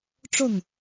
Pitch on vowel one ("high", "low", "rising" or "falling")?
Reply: falling